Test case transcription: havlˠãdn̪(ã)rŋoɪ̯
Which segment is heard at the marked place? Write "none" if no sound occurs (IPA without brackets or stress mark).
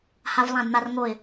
a